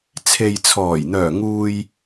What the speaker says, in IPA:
t͡sʰ e˨ j t͡sʰ ɔː˨˩ j n̪ œː˨˩ ŋ uː˨ j

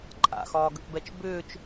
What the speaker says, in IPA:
ǃʼ a̰ x ɒː ɡ ə k b ɛ t͡ʃ b ʏː t͡ʃ

